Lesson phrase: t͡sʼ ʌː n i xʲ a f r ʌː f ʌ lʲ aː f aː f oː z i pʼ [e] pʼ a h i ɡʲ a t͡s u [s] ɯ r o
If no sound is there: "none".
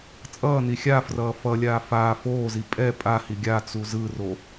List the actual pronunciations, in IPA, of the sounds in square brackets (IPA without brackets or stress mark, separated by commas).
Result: ɛ, z